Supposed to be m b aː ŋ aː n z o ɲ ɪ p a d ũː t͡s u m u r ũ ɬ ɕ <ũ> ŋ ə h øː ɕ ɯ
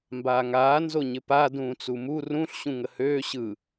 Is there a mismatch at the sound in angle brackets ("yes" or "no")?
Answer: no